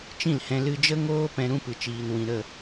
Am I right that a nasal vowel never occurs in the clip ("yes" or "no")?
no